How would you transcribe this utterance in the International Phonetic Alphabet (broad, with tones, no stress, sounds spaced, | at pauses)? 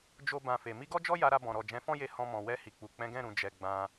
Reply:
d͡ʒ o˦ b ã˧ f e˨ m i˧ ɡ ɔ˦ d͡ʒ ɔ˦ j a˧ ɾ a˧ b ɔ̃˨ ɾ ɔ˨ d͡ʒ ɛ̃˨˦ f ɔ̃˦ j e˧ h ɔ̃˧ m ɔ̃˨ w ɛ˧ h i˨ k͡p u˨ k͡p ɛ̃˨˦ ɡ ɛ̃˦˨ ɾ ũ˨ d͡ʒ ɛ˨ ɡ͡b ã˧